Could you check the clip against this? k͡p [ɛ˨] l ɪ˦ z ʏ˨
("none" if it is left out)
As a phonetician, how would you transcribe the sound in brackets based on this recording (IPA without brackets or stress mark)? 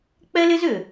ɛ˦